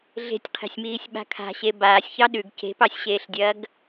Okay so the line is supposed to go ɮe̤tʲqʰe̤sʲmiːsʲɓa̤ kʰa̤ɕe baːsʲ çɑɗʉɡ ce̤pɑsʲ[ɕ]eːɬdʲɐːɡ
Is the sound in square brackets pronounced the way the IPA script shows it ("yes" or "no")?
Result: yes